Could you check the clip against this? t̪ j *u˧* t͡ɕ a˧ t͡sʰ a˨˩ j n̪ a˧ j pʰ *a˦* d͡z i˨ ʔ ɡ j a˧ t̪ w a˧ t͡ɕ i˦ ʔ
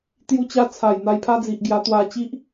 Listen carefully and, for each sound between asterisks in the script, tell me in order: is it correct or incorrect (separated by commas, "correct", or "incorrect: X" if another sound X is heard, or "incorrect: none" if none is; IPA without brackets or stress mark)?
correct, correct